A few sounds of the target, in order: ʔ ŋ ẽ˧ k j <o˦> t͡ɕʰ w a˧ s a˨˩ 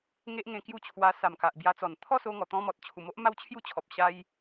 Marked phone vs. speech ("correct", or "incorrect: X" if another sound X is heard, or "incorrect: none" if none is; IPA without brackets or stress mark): incorrect: u˦